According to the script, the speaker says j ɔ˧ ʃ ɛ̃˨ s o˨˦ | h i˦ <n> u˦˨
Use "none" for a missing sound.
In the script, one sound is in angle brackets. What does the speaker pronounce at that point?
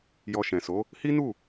n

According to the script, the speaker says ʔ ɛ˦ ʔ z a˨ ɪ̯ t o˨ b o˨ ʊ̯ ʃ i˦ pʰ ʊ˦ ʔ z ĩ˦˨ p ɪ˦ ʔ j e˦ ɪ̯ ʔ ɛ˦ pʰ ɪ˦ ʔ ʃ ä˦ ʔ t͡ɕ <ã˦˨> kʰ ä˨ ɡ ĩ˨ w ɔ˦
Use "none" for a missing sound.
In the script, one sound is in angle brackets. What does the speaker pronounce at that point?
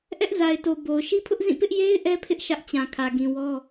ã˨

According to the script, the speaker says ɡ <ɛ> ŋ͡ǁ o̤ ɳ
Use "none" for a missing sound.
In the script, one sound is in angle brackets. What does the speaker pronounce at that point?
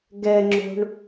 ɛ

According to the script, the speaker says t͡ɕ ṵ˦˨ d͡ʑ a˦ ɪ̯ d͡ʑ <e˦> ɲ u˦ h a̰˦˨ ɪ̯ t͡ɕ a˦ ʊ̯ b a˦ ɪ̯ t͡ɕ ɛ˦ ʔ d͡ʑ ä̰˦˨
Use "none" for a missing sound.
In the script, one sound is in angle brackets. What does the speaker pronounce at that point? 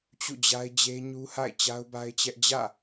e˦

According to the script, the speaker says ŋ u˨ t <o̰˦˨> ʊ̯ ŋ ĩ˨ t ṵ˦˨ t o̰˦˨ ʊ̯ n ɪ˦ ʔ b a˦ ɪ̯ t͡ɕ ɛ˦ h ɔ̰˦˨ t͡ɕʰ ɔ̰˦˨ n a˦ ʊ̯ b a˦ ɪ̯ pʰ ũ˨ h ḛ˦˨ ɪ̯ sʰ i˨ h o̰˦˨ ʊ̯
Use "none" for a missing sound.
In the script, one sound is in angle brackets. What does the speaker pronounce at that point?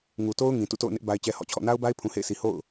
o˦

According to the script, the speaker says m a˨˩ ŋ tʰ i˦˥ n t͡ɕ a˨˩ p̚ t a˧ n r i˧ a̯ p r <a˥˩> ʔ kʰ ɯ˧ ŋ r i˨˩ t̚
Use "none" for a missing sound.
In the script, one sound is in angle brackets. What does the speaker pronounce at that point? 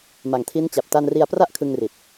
a˥˩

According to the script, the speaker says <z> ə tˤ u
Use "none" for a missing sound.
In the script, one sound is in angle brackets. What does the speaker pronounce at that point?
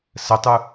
s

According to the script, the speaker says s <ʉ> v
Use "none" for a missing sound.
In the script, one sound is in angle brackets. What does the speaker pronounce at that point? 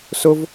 ʊ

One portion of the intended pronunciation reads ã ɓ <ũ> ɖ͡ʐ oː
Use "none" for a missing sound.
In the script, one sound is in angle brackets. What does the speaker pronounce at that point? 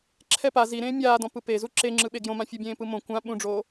ũ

